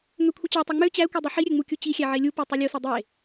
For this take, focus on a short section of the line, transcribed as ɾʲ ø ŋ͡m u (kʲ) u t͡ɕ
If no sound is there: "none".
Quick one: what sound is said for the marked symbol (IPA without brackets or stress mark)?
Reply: kʲ